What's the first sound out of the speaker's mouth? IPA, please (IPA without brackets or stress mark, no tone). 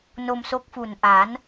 n